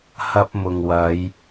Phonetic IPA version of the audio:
hɐ˧p̚mʊ˨ŋwɐ˨˧j

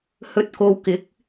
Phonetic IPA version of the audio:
hɵ˨t̚ko˨wkɪ˨˥k̚

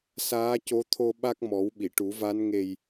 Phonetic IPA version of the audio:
saː˧˥co˧˥t̪ʰo˧ ɓa˦˥k̚mɔ˨˩˦w ɓi˨˩˨ʈu˨˩˦va˧˥n ŋe˨˩j

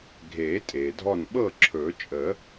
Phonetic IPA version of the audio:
ɡʱeː˨˩˦ tʼeː˩dʱɔ˥˩n ɓɤː˥˩ǁʰɵ˨˩˦t͡ʃʼə˨˩˦

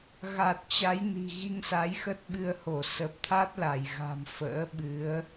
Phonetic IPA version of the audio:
ɣa˨˩t̚ t͡ɕa˨˦j ni̤˨˩ ɣi˧ŋsa˨˦jxə˦˥t̚ ɓɨ˧ə̯ho˧˩ sə˨˩p̚t̪ʰa˦˥t̚ la˧˩jɣa̤˨˩m fə̰ː˧˥ɓɨ˨˦ə̯

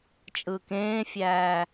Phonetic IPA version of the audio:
t͡ʃʼɯːkẽːfʲæː

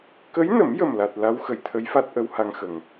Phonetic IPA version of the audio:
kə˧˥jnə˨˩˦mjə˨˩mla˨˩t̚ la˧˥wxə˨˩˨j t̪ʰə˧˥jfa˦˥t̚ ʔə˧˥wha˧ŋxə˨˩ŋ

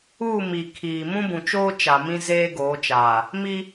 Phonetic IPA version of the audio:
uː˦˨mi˨ kʰiː˨ mũ˦bũ˨t͡ʃoː˦ t͡ʃa˨mĩ˦ zeː˦ ɡoː˨˦t͡ʃaː˨ | mi˦

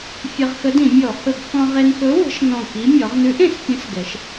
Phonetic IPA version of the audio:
fʲə˧ʁxə˧˥dĩ˧˩˧mʲɔ˧˩˧ hɵ˧˩˧ɡxɔ̃˧ʁe˧nxɵ˧˥ wə̤˧˥ʃnɔ̃˧˩ki˧˥ mʲɔ˩˧ʁnʉ˧˥ʔ ẽ˧˩˧spʲə̃˧˥sɡɛ˩˧ʃ

